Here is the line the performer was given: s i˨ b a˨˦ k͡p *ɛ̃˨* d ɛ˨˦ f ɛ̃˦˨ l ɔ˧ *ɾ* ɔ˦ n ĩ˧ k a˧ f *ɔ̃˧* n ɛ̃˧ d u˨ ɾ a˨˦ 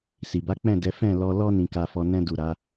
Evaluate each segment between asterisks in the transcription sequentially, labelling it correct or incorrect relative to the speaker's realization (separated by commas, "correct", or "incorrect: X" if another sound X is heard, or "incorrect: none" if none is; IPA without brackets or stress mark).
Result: incorrect: ɛ̃˦˨, incorrect: l, incorrect: ɔ˧